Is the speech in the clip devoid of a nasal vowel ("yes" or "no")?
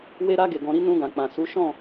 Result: no